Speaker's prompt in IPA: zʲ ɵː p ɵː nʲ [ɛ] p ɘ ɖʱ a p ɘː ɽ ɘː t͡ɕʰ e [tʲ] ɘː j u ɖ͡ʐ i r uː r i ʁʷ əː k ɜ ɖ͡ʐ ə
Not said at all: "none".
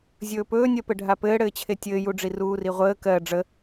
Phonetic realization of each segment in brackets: ɜ, tʲ

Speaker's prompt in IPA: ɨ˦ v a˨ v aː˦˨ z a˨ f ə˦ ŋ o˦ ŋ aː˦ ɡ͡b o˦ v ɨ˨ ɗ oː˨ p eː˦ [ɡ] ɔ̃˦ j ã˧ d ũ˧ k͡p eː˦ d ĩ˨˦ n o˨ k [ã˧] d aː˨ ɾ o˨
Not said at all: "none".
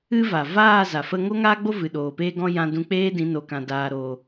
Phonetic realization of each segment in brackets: ɡ, ã˨

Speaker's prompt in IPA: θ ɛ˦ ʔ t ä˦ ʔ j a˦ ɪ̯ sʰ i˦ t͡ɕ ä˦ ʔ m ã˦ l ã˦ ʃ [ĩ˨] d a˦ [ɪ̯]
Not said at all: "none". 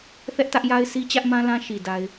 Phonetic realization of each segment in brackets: i˨, ɪ̯

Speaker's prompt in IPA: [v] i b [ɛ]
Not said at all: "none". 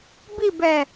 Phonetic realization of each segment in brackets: b, ɛ

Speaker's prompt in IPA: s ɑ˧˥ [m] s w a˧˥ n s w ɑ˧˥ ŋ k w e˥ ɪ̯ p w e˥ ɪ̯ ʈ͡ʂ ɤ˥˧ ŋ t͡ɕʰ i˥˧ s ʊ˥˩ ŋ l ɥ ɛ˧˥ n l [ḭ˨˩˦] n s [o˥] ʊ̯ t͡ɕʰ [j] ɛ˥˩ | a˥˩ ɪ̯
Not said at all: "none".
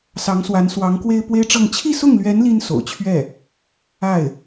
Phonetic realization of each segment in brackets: ŋ, i˥, o̰˨˩, ɥ

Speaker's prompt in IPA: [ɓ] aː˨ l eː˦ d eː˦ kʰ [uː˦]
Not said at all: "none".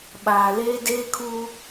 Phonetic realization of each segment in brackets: ɓ, uː˦

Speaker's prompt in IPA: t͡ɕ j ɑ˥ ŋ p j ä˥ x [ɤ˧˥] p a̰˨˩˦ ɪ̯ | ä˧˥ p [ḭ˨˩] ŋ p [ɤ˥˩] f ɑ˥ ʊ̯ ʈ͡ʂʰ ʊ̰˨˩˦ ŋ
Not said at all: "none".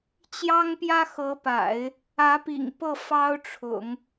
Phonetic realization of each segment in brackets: ɤ˧˥, ḭ˨˩, ɤ˥˩

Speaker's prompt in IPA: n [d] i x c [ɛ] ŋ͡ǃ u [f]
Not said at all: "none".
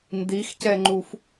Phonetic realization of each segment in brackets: d, ɛ, f

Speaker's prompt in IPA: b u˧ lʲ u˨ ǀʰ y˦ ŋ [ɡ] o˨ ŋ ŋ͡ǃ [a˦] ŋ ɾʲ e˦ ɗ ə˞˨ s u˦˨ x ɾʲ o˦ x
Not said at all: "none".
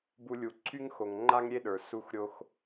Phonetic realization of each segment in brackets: x, a˦

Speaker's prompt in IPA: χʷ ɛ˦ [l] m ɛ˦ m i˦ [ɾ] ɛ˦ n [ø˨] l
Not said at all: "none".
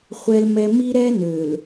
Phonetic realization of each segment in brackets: l, ɾ, ø˨

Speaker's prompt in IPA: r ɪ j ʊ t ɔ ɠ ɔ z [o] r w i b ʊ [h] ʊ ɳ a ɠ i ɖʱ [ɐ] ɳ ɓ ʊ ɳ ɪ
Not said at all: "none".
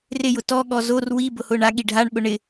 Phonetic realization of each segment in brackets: o, h, a

